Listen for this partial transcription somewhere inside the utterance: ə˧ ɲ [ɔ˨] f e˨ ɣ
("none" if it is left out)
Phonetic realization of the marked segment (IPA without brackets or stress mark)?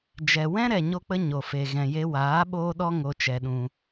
o˨